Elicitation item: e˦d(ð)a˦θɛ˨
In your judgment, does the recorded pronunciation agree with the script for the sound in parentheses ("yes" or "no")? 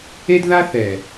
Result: yes